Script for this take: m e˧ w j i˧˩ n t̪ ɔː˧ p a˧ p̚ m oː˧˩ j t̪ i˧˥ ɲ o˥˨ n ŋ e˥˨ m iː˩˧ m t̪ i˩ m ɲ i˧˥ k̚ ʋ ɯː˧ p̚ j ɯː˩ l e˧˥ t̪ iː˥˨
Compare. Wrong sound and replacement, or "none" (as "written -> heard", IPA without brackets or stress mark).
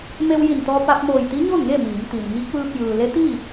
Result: none